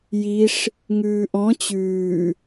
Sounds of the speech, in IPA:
jiʂ | ŋʉːʔɔ̃ t͡ɕʉː

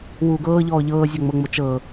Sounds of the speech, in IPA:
wuːɡɤːʎɔː ʎɤːzʲɔŋ͡mɤŋ͡mo t͡ʃɤː

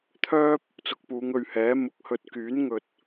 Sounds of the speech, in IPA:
t̪ʰœː˥p̚ | t͡sʊ˨k̚puː˨˧ŋɵ˨ɥhɛː˨˥ mʊ˨k̚hɵ˧t̚ kyː˨˥n ŋɵ˨t̚

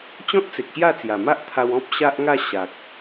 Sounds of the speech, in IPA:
t͡ɕɔ̃˦t̚t͡se˨k̚ ɕja˥˧t͡sja˨˩ma˦ʔt̪ʰa˧w ɔ̃˦p̚ ɕa˦ʔŋa˥˧ ɕa˨k̚

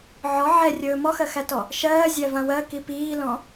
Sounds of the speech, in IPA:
ʕɔ ʕɛrʲɵː mɔxɜxætɔ | ʃɜːzʲævã wɜki piːlɔ̃

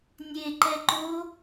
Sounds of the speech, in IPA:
nʲeǃɛ ǃo

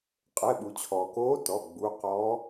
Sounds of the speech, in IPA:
qʼɛ˩˧˩ɓu˩t͡ɕʰɔː˩koː˧˥ tɔ˩˧˩ ɡ͡bu˩˧˩qɔ˧˥

